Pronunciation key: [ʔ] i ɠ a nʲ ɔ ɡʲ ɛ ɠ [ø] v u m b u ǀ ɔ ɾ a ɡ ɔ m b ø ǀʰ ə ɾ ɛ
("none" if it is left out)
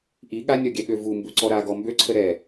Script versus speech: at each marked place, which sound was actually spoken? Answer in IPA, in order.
ʔ, ø

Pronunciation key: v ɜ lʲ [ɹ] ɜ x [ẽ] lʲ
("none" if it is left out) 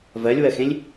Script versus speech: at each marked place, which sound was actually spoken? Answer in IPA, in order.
w, ẽ

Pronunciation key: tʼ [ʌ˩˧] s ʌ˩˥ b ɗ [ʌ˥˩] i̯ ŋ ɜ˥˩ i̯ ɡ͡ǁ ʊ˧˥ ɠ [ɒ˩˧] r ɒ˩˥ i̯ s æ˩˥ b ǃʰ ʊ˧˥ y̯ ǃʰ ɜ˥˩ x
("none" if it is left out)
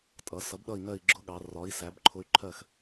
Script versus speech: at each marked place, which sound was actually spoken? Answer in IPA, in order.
ʌ˩˧, ʌ˥˩, ɑ˩˧

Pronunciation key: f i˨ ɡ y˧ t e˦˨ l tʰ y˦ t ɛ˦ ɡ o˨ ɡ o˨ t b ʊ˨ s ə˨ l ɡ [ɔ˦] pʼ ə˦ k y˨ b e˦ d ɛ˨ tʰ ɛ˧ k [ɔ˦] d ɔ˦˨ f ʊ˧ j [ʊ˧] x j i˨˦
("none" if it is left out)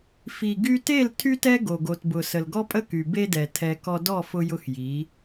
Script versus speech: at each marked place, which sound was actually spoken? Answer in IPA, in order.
ɔ˦, ɔ˦, ʊ˧

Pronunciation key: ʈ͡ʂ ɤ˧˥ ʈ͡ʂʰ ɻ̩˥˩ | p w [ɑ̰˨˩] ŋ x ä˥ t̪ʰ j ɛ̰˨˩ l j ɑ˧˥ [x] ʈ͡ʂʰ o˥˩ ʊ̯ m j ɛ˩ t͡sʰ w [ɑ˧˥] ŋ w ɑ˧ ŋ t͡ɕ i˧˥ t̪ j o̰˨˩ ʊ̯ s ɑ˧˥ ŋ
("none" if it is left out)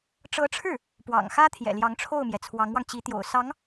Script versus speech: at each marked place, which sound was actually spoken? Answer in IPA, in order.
ɑ̰˨˩, ŋ, ɑ˧˥

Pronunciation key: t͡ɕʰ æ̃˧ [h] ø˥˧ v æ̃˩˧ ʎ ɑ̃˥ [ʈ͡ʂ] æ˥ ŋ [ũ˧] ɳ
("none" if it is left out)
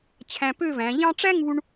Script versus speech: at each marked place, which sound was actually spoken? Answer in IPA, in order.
p, ʈ͡ʂ, u˧

